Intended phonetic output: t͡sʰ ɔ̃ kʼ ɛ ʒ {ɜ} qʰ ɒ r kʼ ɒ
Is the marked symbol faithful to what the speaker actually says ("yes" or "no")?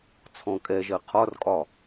yes